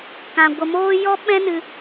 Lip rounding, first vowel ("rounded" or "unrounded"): unrounded